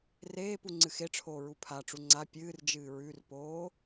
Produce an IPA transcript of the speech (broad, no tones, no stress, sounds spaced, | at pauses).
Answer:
r eː p u ŋ͡ǀ ɨ x e ʈ͡ʂʰ oː ɹ u pʰ a ʈ͡ʂ u ŋ͡ǀ a pʲ ɨː r d͡ʒ ɨː ɹ ʉ r p oː